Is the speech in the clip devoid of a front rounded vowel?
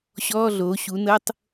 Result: yes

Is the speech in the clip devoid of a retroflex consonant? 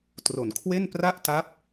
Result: yes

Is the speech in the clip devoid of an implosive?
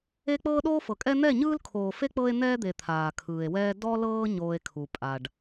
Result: no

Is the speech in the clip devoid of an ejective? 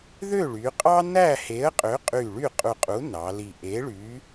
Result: no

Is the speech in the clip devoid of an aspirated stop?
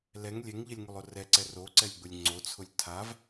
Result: no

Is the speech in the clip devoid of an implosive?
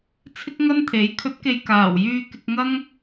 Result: yes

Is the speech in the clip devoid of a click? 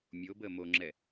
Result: no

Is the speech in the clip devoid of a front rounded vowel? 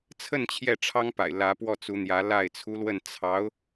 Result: yes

